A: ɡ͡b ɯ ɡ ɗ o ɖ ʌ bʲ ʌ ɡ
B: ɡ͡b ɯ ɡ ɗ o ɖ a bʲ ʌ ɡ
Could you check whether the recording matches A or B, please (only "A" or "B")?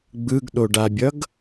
B